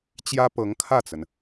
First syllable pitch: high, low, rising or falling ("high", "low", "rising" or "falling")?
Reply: high